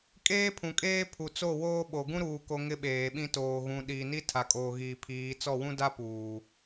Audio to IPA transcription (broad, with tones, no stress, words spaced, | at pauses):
kʼeː˦pʰũ˨kʼeː˦ pʰu˨t͡so˦˨ woː˦ɓo˨ ɡũ˦ɾuː˨ko˨ ŋɪ˦ɓeː˨ɓĩ˦toː˨ ɣũ˨ɗi˨ ni˦ tʰa˨kʼoː˨ɣiː˨pʰiː˨˦ t͡sɔ˦˨wũ˦da˦ puː˨